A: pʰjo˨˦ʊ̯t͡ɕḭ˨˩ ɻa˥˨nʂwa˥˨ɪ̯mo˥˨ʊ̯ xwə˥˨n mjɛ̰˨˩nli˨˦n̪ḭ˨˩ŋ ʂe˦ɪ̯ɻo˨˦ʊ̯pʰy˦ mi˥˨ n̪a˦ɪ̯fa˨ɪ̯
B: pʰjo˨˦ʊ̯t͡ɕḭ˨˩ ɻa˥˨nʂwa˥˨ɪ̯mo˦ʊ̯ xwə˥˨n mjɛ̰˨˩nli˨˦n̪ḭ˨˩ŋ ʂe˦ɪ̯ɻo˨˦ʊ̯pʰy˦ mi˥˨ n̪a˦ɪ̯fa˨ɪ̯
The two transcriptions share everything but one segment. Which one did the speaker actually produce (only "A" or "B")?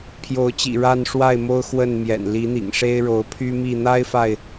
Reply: B